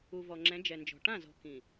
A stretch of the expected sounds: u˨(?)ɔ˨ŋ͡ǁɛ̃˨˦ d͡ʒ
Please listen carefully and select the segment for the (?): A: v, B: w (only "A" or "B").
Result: A